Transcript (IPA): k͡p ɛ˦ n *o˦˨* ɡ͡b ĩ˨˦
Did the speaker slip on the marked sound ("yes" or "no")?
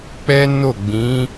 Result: no